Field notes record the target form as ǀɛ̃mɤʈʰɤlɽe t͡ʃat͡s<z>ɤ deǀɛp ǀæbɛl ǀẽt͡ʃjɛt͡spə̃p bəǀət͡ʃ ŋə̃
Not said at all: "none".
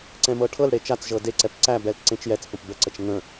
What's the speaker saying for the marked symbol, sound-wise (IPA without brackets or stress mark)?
ʒ